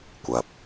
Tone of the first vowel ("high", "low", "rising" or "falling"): low